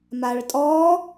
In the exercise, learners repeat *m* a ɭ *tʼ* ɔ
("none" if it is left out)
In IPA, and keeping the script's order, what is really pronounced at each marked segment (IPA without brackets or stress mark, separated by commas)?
m, tʼ